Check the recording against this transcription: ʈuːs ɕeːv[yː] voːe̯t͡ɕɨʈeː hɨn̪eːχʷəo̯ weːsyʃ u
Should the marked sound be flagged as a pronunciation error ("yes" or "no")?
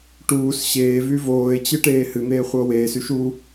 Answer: yes